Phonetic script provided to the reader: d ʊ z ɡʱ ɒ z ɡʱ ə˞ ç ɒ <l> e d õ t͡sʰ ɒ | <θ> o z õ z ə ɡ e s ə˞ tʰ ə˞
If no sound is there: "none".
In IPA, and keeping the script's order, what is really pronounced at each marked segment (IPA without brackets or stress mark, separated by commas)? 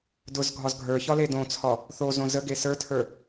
l, θ